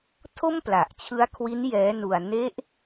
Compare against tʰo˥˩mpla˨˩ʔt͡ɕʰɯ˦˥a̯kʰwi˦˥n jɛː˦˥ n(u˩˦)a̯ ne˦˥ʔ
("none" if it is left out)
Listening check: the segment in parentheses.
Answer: u˧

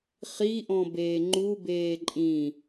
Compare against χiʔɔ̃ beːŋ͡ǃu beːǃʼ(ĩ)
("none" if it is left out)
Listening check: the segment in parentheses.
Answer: ĩ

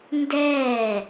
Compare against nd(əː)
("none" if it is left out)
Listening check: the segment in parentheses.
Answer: ɛː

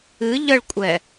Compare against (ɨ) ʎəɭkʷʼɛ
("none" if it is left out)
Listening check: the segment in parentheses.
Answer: ɨ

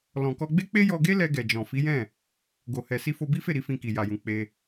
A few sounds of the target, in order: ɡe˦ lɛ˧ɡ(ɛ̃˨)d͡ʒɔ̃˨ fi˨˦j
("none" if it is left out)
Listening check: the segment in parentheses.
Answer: ɛ˨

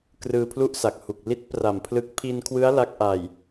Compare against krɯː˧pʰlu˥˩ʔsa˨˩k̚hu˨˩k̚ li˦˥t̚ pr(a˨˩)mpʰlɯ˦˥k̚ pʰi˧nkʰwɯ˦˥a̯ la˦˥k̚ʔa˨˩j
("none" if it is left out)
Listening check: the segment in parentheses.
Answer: a˨˩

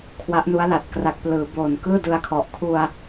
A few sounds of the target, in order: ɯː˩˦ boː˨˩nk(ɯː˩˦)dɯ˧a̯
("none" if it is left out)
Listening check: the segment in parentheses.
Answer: ɯː˥˩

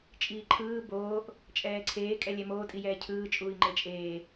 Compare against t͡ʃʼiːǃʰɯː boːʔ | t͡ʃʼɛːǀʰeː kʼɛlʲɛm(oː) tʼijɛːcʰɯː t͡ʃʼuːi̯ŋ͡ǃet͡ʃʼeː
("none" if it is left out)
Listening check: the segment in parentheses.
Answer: oː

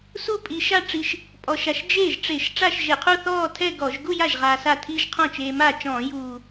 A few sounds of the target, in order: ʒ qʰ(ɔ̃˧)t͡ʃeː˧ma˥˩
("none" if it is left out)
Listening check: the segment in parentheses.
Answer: ɔ̃˥˩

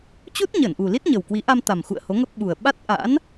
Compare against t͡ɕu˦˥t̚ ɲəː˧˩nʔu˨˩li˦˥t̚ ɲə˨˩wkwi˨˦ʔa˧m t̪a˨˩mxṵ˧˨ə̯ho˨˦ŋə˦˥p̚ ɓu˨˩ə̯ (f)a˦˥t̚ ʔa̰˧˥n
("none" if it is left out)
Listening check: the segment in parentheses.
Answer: ɓ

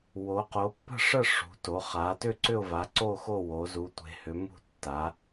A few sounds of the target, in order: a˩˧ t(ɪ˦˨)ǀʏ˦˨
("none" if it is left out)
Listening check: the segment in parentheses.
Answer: ʏ˦˨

